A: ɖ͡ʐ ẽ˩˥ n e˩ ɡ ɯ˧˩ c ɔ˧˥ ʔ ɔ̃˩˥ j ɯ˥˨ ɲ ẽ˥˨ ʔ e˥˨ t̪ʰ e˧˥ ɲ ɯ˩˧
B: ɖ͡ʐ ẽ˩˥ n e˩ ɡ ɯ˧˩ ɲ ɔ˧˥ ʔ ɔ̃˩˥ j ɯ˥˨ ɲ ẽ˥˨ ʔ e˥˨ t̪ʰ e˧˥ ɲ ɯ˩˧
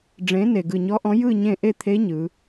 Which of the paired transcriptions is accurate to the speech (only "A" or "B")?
B